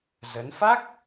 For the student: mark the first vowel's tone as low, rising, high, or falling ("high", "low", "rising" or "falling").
rising